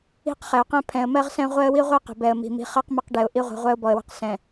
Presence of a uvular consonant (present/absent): present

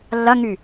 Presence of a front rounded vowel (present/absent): present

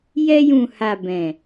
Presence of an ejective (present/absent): absent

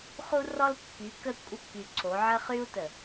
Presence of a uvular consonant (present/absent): present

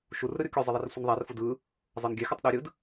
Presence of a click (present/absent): absent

